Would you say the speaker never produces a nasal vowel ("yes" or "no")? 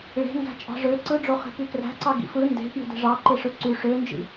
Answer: yes